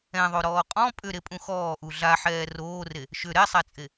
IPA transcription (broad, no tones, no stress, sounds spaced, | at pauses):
ɛ̃ ðˤ o ɾ ɔː qʼ ɔ̃ pʼ ʏ ɾ e pʼ ũ x ɔː ʔ u ɮ a ħ ɛː r oː r e | ʃ ʏ ɾ ɛ sˤ æ t͡sʼ e